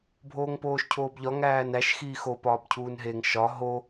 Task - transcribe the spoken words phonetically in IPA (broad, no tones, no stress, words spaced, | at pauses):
bʱoːŋpoːʃcʰoːbʎɒ ŋæːnæʃ xiːxo pɒːbcʰuːnɦeŋ ʃɒ ɦo